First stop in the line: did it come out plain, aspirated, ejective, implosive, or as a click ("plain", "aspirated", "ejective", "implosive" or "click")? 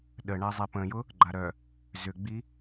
implosive